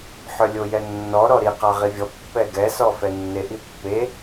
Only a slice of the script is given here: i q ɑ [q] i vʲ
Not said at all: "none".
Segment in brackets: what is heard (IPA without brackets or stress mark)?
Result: ʁ